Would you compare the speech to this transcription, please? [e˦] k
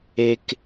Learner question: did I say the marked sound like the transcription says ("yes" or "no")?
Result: yes